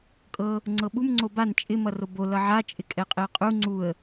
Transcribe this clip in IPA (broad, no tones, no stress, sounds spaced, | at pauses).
kʼ ɤ | ŋ͡ǀ ɤ ɓ u m ŋ͡ǀ o b a n t͡ʃʼ ɪ m ʌ r o b o l ʌ ʕ a t͡ʃʼ ɪ kʼ ɛ qʼ ɪ ə̯ qʼ u ŋ͡ǀ u ə̯